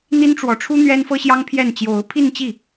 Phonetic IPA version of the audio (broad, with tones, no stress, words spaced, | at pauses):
n̪i˥nʈ͡ʂwɔ˧˥ʈ͡ʂʰu˥ n̪ɥɛ˥nfɤ˥ɕjɑ˥ŋpʰjɛ˥˩n t͡ɕjo˧˥ʊ̯pʰi˥˧nt͡ɕi˥˩